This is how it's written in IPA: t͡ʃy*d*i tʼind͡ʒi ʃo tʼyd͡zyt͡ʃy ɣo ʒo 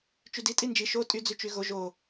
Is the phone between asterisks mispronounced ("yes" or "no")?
no